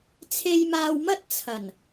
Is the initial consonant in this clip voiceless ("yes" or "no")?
yes